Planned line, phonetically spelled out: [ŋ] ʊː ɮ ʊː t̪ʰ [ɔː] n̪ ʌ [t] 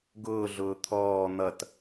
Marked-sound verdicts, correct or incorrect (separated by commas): incorrect, correct, correct